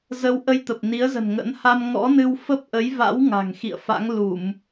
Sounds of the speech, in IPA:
zə˧w ʔə˧jt̪ə˨˩p̚ ni˨˦ə̯zə̤˨˩n ŋə̰˧˥n ha˧mŋɔ̰˧˥nɨ˧w fə˦˥p̚ʔə˨˦jva̰˧˥w ŋa̤˨˩ŋxḭ˧˨ə̯fa̰˧˥ŋ lu˧˩˨m

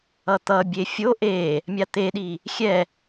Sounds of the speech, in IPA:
ʌt̪ʌbʲe fʲo ʔe | mʲat̪eɗi | xʲɛ

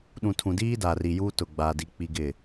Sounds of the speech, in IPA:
ɗũ˨tʰũ˨diː˦ da˨ri˨juː˦ tʊ˨ɡ͡baː˨di˨ k͡pi˦ɡɪ˦˨

